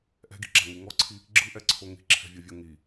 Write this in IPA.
ʔ ɛ̤ ɡ i̤ ɡ͡ǁ a ŋ i ŋ ɔ ǀʰ i | ɡ͡ǁ ɯ ʔ ɛ ǀʰ o ŋ i̤ ǁʰ ɛ̤ vʲ ɯ vʲ o ŋ i

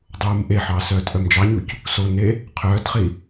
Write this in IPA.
dˤ uː m ʔ e ħ ɑ s œː t ʔ œ m d͡ʒ ɑ ɲ u c | s o n e | qʰ œː t χ i

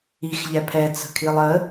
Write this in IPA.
i x ʎ ɛ pʰ ɛ t͡s ə̤ kʰ i lˠ ə

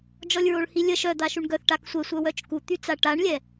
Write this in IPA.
d͡ʒ ɔ lʲ ɹ o ɭ h i lʲ ə ʃ œ d̪ a ʃ u ɳ ɡ œ θ ʈ a k sʷ ɛ sʷ œ w œ t͡ʃ k u t̪ y t͡s a ʈ a ɳ lʲ ɛ

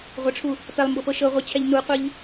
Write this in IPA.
ʁʷ ɐ ʈ͡ʂʰ u | p ɛ lˠ m b ɤ p ɤ ʃ ɤ ʁʷ i t͡ɕʰ ɛ ʎ n u qʷ i ʎ

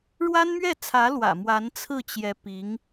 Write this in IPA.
ɻ w a˥ n m ɥ ɛ˥˩ t͡sʰ ä˧˥ l w ä̰˨˩ m w a˧˥ n t͡sʰ ɹ̩˥˩ t͡ɕ j ɛ˧˥ p i˧˥ ŋ

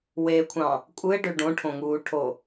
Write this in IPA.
w e kʷʰ ɑ̃ | kʷʼ ɯ ɪ̯ ɖ ø ɖ õ ʈʰ õ ŋ uː ʈʰ o

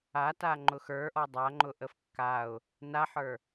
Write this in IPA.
a t a ŋ͡ǃ ʊ x ə˞ ʔ ɔ dˤ a ŋ͡ǃ ʊ ʔ ə f kː a ʊ̯ | n a ħ ə˞

